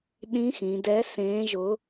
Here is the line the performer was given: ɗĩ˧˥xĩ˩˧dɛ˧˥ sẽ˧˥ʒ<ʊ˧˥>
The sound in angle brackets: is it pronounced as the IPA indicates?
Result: yes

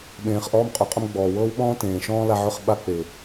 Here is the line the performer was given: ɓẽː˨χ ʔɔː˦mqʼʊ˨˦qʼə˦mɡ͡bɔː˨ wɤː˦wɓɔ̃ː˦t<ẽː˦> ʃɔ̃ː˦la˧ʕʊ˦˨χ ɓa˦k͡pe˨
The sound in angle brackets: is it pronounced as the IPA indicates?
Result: no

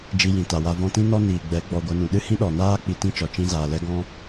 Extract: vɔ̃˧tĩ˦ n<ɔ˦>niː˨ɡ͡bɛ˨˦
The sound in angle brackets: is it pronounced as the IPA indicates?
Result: yes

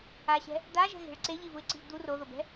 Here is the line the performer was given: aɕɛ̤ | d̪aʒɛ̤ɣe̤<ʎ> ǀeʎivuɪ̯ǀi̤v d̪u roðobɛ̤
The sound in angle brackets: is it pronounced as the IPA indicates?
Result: no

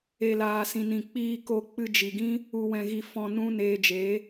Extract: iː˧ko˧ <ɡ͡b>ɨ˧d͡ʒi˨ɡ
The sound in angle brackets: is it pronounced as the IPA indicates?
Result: no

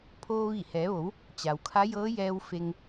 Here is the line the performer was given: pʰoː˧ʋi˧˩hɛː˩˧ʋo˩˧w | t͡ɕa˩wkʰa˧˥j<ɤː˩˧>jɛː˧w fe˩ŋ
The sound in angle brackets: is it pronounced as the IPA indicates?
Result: no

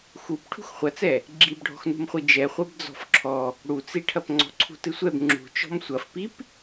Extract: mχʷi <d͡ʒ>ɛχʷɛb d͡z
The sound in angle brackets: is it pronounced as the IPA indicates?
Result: yes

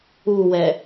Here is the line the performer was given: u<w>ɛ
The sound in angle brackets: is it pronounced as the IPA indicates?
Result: yes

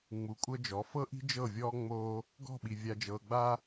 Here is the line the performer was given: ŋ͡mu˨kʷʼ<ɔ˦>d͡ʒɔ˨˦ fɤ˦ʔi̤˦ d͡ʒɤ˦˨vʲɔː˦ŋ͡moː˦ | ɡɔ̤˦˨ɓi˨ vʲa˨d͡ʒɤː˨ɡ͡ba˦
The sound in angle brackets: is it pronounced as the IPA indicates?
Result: no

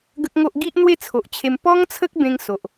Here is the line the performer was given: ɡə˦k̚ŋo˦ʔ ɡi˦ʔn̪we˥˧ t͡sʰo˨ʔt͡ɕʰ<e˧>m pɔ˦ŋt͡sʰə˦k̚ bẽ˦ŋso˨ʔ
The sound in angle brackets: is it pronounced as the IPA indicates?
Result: yes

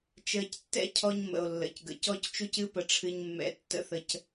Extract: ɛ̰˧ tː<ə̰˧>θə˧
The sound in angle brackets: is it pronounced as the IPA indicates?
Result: no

